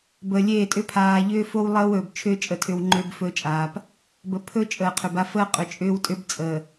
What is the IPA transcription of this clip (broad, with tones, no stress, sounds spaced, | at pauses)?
b əː˨ lʲ eː˦˨ tʼ ʏ˦ pʰ aː˨ ʎ ʏː˦ f o˦ w lˠ əː˦ w ɵː˨ b t͡ʃʰ ʏː˦ t͡ʃʼ ə˨ tʰ ʏ˨ w ŋ͡ǃ ʏː˦ b f ɵː˦ t͡ʃʼ aː˨ p | b ə˨˦ pʰ ɵ˦ t͡ʃʼ əː˨ qʰ ʏ˨ b a˦ f əː˦ qʼ ʏ˨ t͡ʃʼ ʏː˦ w tʼ ʏ˦ b t͡sʼ ə˨